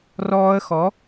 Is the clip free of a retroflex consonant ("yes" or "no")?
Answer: yes